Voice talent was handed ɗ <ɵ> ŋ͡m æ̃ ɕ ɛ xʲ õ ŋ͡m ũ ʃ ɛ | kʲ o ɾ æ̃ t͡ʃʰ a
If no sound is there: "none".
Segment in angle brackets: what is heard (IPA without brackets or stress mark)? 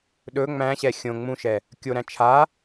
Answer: ɵ